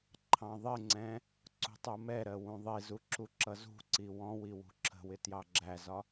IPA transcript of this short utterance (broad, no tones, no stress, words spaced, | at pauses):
ǃʰɑ̃ðˤɪŋ͡ǀɛ̃ | ǀṳtˤumɛɾɜ wũðˤizu ǁuǁʌzṳǀi wɔ̃wi wṳǁʰə̤wɪ tjɑɡ͡ǁæzɒ